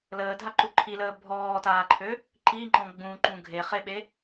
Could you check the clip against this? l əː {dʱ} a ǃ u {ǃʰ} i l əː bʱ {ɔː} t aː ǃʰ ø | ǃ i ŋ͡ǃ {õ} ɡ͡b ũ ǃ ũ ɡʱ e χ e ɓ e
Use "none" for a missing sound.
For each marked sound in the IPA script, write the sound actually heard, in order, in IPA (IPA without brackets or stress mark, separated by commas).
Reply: dʱ, ǃʰ, ɔː, ɔ̃